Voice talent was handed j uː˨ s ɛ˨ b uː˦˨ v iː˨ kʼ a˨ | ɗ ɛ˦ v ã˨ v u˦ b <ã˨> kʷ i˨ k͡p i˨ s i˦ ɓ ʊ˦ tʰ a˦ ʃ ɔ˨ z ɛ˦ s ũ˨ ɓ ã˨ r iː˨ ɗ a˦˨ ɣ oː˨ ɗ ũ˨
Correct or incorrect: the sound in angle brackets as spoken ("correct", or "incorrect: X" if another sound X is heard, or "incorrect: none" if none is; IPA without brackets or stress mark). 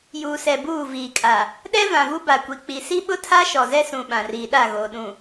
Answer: incorrect: a˨